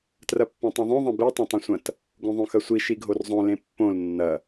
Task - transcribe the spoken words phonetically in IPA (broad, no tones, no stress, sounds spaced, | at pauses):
t r ɐ pː ɐ̃ tˤ õ ðˤ õ ðˤ ɐ̃ b i tˤ ẽ tˤ ɐ̃ sʷ ɐ̃ t | ɡ õ ðˤ õ x ɐ sʷ i ʃ i ɡʱ o r zˤ õ l ẽ pː õ l nː ɐ